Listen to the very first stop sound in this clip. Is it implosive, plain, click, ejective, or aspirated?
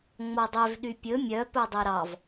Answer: plain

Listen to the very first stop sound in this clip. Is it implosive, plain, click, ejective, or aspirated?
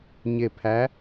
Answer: aspirated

